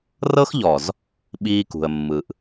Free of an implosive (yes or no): no